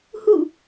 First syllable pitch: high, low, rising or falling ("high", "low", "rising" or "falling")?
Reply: falling